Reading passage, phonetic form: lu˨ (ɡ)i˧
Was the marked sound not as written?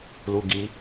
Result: no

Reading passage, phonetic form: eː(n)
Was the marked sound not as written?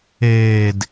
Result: yes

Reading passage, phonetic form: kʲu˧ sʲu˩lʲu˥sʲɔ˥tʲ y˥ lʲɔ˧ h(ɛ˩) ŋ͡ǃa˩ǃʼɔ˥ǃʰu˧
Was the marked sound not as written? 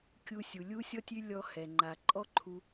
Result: no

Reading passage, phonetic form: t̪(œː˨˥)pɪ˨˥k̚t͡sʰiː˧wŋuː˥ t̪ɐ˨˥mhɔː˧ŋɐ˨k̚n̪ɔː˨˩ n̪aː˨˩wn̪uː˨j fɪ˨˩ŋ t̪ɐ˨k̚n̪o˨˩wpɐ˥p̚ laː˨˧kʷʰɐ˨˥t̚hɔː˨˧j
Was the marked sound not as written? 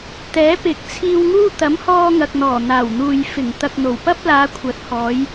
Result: yes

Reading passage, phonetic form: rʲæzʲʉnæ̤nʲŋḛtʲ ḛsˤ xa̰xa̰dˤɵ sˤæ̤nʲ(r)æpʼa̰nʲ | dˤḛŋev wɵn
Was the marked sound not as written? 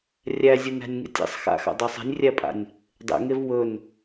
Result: yes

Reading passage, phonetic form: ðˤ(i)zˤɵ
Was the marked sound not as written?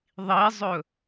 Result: no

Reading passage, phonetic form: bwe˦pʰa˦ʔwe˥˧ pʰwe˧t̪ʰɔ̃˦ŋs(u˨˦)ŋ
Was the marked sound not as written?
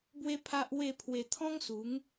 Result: no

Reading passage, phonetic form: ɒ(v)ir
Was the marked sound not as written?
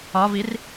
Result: no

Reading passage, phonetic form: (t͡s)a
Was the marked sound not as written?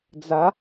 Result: yes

